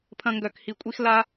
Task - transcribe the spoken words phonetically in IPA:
pʰ ɐ̃˧ ŋ ɡ œ˦˨ k h i˧ kʷʼ i˦ x l a˦

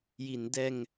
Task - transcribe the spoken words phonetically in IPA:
j i˩˦ n d ɛː˧ ŋ

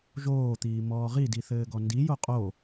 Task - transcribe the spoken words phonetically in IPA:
ʒ oː t̪ iː m ɔː ʁ i d i θ ɘː ɡ ɔ n d i j o qʼ o

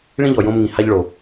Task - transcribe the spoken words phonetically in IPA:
ɭ ĩ˧ ʎ ɔ˩ j õ˧ m ŋ ĩ˩ h a˧ ʎ ɭ o˩

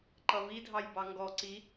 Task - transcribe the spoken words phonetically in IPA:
ǃ ʌ v i dʱ ɑ j b ɑ ŋ ɡ ɔ ǀ i

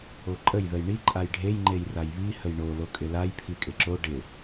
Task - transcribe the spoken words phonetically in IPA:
o ǃʼ ə j ð ə j ɳ i ǃʼ a j ɖʱ e j ŋ͡ǃ e j r a j β i h ə j ɳ o l o kʼ ɪ l a j pʰ i kʼ ɪ ǁ o ɖ ɪ

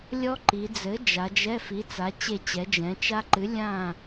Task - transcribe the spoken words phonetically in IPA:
lʲ ɔ˦˥ ǃ i˩˧ d͡z ɘ˨˥ d͡ʒ a˩˧ d͡ʒ ɛ˧˥˧ f i˨˥ t͡s a˨˥ t͡ɕ e˥˨ t͡ɕ ɛ˨˥ d͡ʒ ɛ̃˨˥ t͡ʃ a˦˥ ǃ ɨ˨˥ lʲ ã˥˨

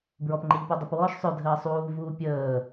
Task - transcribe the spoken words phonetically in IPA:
b ɹ ɔ p ŋ͡ǃ e ʎ p u dˤ ə p w ɔː ʃ sˤ ø dʱ əː sˤ uː v uː pʲ əː

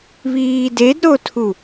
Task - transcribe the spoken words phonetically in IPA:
β iː d e d ɾ o tʰ u

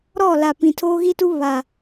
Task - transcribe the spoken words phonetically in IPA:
ɾ ɔ˦˨ l a˨ p ĩ˨ tʰ oː˦ ɣ i˦ t u˦ β a˨

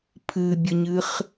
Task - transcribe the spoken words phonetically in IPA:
pʰ ɨ bʲ ə ɲ ɨ χ

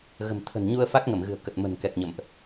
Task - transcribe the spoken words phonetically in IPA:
ɣ ə̤˨˩ m t̪ʰ ə̤˨˩ n ɲ u˧ ə̯ f a˦˥ k̚ ŋ ə˧˩ m ɣ ɨ̤˨˩ ə̯ k ə˨˩ t̚ m ə̤˨˩ n k ɛ˨˩ k̚ ɲ ə̰˧˨ m ʔ

